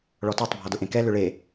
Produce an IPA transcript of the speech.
ɭ ɔ t ɔ tˤ bʱ ɔ d ʊ ʔ ẽ k ɛ l ʏ ɭ e

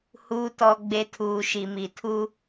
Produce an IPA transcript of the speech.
h uː˨ t ɔ˨ ɡ͡b e˨ tʰ uː˨ ʃ i˨ m i˨ tʰ u˦

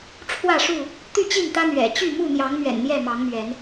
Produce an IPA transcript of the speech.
ʈ͡ʂʰ w ä˥˨ ʂ u˥˨ | t̪ y˥˨ t͡ɕ i˥˨ n t̪ ä˦ n̪ ɥ ɛ̰˨˩ t͡ɕ y˥˨ m u˥˨ n̪ j ɑ˨˦ ŋ m ɥ ɛ̰˨˩ n n̪ j ɛ˥˨ m ɑ˨˦ ŋ m ɥ ɛ˨˦ n

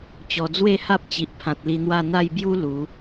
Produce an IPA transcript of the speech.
t͡ɕ ɔ˨˩ d͡z w e˥˧ h a˦ p̚ t͡ɕ i˨ ʔ pʰ ã˨ t̚ l i˧ n̪ w a˥˧ n̪ a˥˧ j b j u˦ l u˨˦

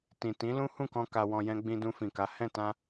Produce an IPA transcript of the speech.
t ĩ˨ t ĩ˨˦ l ũ˦ h ũ˦˨ k ɔ̃˧ k a˧ w ɔ̃˧ j ɛ̃˦ ɡ͡b ĩ˧ d ũ˧ f ĩ˨ k a˨˦ h ɛ̃˦˨ t ã˧

